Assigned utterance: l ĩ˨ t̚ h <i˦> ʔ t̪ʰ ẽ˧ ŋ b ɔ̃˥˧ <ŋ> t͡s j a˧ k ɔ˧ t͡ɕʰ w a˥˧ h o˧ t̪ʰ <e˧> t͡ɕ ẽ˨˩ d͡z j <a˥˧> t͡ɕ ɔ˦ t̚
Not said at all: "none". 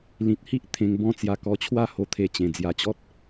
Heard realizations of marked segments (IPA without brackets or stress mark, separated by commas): i˦, none, e˧, a˧